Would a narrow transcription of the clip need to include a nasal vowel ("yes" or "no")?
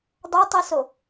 no